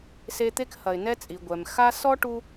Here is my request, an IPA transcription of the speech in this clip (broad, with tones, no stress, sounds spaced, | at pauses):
s e˦ t̪ e˥ k h ɐ˨ ɪ̯ n ɛ˦ t͡sʼ i˩ ɡʷ ɛ˩ m x a˦ s ɔ˥ ʈ u˦